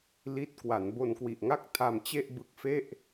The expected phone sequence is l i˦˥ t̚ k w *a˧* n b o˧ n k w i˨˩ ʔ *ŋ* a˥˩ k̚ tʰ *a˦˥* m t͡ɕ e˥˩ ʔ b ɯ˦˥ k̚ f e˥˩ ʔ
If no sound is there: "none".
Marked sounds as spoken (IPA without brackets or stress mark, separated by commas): a˩˦, ŋ, a˧